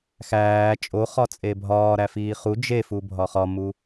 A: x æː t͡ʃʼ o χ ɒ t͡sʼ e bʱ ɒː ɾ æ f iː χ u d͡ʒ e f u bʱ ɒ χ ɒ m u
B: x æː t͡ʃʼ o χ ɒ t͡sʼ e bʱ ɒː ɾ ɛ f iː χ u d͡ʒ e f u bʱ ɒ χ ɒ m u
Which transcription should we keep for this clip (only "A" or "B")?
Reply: A